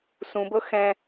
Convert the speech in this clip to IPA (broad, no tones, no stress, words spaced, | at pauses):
sũbɤ xɛ̃